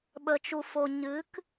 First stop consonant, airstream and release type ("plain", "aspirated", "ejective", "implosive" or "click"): implosive